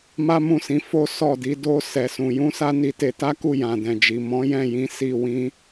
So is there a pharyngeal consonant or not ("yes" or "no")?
no